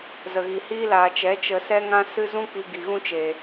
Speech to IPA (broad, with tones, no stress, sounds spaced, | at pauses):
z ə˨ ɣ i˨ h iː˦ l aː˨ t͡ʃ ɛ˨˦ t͡ʃ ə˧ s ɛ˦ ŋ ã˦ s ɨ˦ z ũ˦ k͡p i˧ ɡ i˨ ɣ ũ˦ t͡ʃ e˨